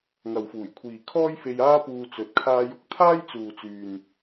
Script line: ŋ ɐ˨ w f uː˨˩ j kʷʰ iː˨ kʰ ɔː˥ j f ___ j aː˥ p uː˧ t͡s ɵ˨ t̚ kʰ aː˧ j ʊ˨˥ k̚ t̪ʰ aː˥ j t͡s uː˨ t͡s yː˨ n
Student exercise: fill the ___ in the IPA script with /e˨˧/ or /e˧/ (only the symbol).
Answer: e˧